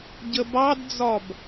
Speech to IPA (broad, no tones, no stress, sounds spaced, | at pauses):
ɟ ə b ɑ d d͡z ɒ b